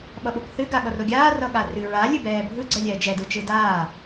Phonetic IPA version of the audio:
ɓ ʌ ɓ o k θ ɨ ɡ a ɠ ʌ r o ɡʲ aː r ʌ ɠ a r ɨ ɹ a lʲ ɨ b ɛː bʱ ɯ ɡ͡ǀ ɜ lʲ ɛː d͡ʒ ɛ d ɯ t͡ʃ ɯ d aː

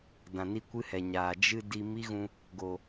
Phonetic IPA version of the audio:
d ã˨ n i˧ kʷ ɨ˦ h ɛ˨ ɲ aː˨ d͡ʒ ɨ˧ d i˧ m i˦ ɣ ũ˧ | ɡ o˨

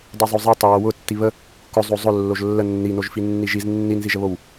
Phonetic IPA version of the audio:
dˤ i zˤ o zˤ i tˤ ʊ w o w ʊ tː i β ə | k ʊ zˤ o zˤ ʊ lː o ʒ lː ə nː i n o ʒ f i nː i ʒ i z nː i n z i ʒ ə β o w

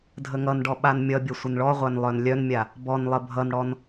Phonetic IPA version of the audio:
dʱ ə ŋ ʌ n ɖ ɔ ɓ a n mʲ ʌ bʲ ə sʷ ə n ɭ ɔ ʁʷ æ n lˠ œ n lʲ œ n mʲ a | b ɔ n lˠ ə bʱ ʌ n ɽ ɔ n

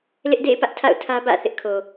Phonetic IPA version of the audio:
l ɪ˦ ʔ d ḛ˦˨ ɪ̯ p ä˦ ʔ tʰ a̰˦˨ ʊ̯ tʰ ä˦ b ä̰˦˨ θ ɪ˦ ʔ kʰ o˨

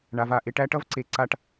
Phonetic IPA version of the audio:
ɳ a˨ v a˨ ʔ e˧ ʈ æ˦ ʈ ʌ˦ v ǀ e˨ ǀ a˧ ʈ

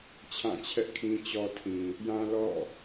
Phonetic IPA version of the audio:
t͡ɕʰ ã˦˨ t͡ɕʰ ɛ˦ ʔ kʰ ĩ˦ t͡ɕ ɔ˦ tʰ ĩ˨ | j ã˦ l ɔ̰˦˨

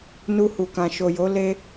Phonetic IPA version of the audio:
n u˧ h u˨ k ã˨ ʃ o˨ j o˨˦ l e˧

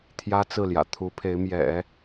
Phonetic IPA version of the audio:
t̪ʰ j ä˥ t͡s ɹ̩˥˩ l j ä̰˨˩ t̪ʰ u˧˥ pʰ e˧˥ ɪ̯ m j ɛ̰˨˩˦

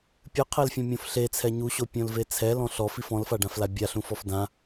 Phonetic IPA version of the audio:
pʲ ɨ qʰ ɛ l fʲ ɔ̃ mʲ õ f ɬ e t͡sʰ ɛ ɲ u ɕ o pʲ õ l v e t͡sʰ ɛ l ɔ̃ ɬ ɔ f i f ɔ̃ l f a ɖ ã f l a bʲ a ɬ ũ f ɔ f d ã

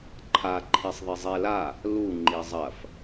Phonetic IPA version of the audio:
ǃʰ a ǃʰ i sˤ ðˤ e zˤ e l a | l u ŋ͡ǃ i zˤ ɐ f

